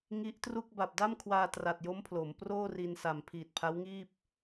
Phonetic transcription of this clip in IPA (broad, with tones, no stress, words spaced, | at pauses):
ŋi˦˥ʔtru˥˩k̚ ba˨˩p̚da˥˩mkʰwaː˧ tra˨˩t̚jo˦˥mpʰlo˩˦m proː˥˩ri˧nsa˨˩m pʰiː˨˩t̚pʰa˦˥w ŋiː˥˩p̚